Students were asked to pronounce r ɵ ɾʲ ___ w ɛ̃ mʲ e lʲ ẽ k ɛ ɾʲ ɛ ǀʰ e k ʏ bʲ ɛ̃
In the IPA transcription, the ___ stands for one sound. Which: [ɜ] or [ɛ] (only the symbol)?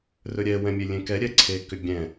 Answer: ɛ